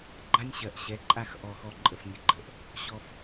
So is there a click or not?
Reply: yes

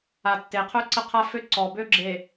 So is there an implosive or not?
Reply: no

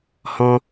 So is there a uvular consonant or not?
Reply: no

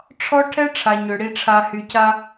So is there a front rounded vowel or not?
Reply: yes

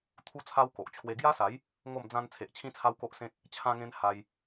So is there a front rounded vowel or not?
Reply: no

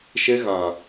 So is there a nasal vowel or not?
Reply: yes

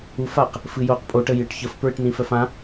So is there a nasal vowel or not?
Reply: yes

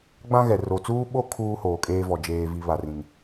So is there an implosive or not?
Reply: yes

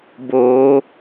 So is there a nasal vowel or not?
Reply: no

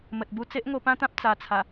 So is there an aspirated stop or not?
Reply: yes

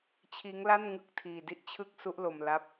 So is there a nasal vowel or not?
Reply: no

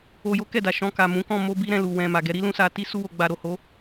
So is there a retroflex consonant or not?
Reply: no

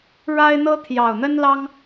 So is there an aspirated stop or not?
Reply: yes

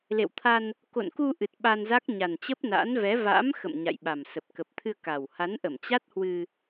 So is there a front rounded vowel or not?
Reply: no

